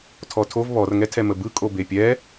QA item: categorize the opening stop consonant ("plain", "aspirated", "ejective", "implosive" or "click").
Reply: aspirated